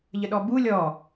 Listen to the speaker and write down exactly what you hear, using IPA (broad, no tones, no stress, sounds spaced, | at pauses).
ʎ ə ɗ ɔ b u lʲ ɔ